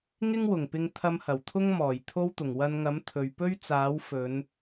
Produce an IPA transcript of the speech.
ŋɪ˥ŋwʊ˨˩ŋpɪ˧ŋ t̪ʰɐ˧mhɐ˨˩wt̪ʰʊ˥ŋmɔː˨˩j t̪ʰo˥wt̪ʊ˨˩ŋ wɐ˧nŋɐ˨˥mt̪ʰɵ˨ɥ pɵ˥ɥ t͡saː˨˥w fɵ˨˧n

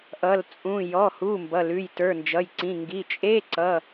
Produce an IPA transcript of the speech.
ʔʌ˩˧˩lt͡sʼũ˩˧˩ jɔ˩˧˩hu˩˧˩ mbʌ˩˧˩lʉ˩˧˩j tə˞˩˧˩nd͡ʒʌ˩˧˩jǀĩ˩˧˩ ŋɡi˩˧˩t͡ʃʼe˧˥˧ ǀʌ˩˧˩

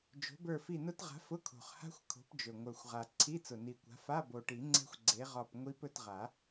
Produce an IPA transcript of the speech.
d͡ʒo̤˨˥bə˞˦˨fi˦˨nʊ˦˥t ʁa̤˨˥fʊ˧˥˧kʰo̤˨˩χha̤˦˥xʷ kʰo̤˨˥pd͡ʒɵ˨˩ ŋʷə˞˨˩xʷʁa˨˩ ǀʰi˧˥˧t͡sʊ˨˩ni˨˩kʷa̤˨˥ fa˧˥˧bo˨˩ʈi˨˩˦ ŋ͡ǀɛ̤˦˥xʷɡ͡ǀe˨˥ʁɒ˦˨p ŋʷi˦˥p ɵ˦˨tʁa˨˩˦

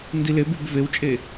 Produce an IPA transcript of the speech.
ndilebyb vewt͡ʃʼe

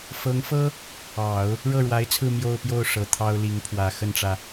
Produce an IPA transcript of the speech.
fɤ˧˥ŋfɤ˥ | ɑ˨˩˦ʊ̯ | ɻɤ˥˩ɻwa˧˥ɪ̯t͡sʰɹ̩˥˧ mjo˥˧ʊ̯pjo˥˩ʊ̯ ʂɤ˧˥t̪ʰɑ˥ʊ̯li˧˥ŋpʰwä˨˩ xə˥˩nʈ͡ʂä˩

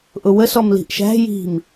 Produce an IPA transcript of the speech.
ʔʊwə sɔmli̤ʔʃæ̤ ji̤m

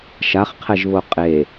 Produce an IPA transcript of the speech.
ʃaχqʰɛʒβo qʼe

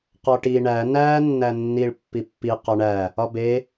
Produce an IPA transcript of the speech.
qɒʈi ɳæ næ nːænːiɭ pːipːi qɒɳæ | ɒbe

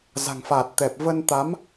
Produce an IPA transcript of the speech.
za̤˨˩ŋfa˨˩t̚t̪ɛ˨˩p̚ və˧nt̪a˨˦m

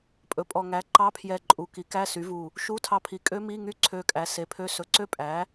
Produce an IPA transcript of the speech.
pʼɵ˩˧˩pʼɔ˧˩ ŋæ˩˥ ǃɑ˧˥˧pʰjɛ˧˩ǃʼu˩˧˩ ki˩˥kæ˧˥˧ sy˩˥vu˧˩ | ʃu˧˥˧tʰɑ˧˩pʰi˩˥ kʼø˦˥mi˧˥˧ŋy˦˥ ǀʰø˧˩kʼæ˩˥se˩˥pʰø˧˥˧ sɵ˩˧˩ǀø˦˥pʼæ˩˥

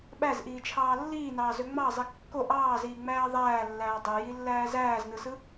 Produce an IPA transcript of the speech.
ɓæzʔiːt͡ʃʰɑː lːiːnɑːzø ŋ͡mɑzˤi kːo ʔɑːziːŋ͡mæː ðˤæːlːæː dˤøjilːæː zæːznɯsɯ

